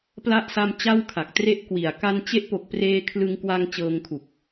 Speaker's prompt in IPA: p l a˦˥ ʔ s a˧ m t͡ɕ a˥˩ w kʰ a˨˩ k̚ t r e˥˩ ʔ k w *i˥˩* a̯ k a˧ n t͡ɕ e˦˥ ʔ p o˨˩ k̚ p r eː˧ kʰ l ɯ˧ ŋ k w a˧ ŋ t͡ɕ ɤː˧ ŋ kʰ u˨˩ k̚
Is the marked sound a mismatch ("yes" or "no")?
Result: yes